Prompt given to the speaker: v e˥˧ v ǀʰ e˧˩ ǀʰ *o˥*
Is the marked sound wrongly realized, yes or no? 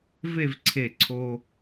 yes